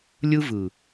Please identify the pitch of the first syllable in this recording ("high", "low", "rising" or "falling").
high